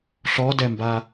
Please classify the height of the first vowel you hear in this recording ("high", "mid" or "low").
mid